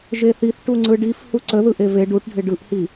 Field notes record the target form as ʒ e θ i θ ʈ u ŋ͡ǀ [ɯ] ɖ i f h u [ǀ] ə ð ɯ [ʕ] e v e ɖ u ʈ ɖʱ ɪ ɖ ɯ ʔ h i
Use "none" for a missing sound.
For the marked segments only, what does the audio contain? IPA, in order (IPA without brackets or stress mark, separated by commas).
ɯ, ǀ, ʔ